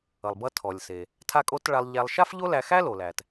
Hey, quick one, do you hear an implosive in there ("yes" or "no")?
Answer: no